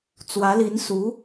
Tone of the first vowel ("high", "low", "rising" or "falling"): rising